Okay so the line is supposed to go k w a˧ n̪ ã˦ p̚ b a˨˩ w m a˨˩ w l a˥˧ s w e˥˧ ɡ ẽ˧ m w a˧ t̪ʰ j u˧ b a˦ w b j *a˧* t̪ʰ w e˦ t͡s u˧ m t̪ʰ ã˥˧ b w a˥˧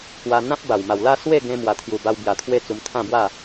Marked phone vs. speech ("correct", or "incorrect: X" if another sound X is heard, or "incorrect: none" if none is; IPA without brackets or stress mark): correct